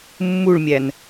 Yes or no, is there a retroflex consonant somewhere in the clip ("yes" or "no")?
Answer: yes